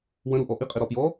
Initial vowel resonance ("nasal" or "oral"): nasal